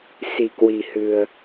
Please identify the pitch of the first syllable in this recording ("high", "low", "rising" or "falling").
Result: low